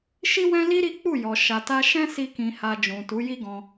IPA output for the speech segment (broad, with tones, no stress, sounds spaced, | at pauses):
ʃ i˦ w ɛ̃˦ l i˦ ɾ i˦ k͡p u˦˨ j ɔ˨ ʃ a˨ t a˧ ʃ ɛ̃˦ s i˦ k ĩ˧ h a˧ d͡ʒ ũ˨ t u˨˦ j i˦ ɡ ɔ̃˧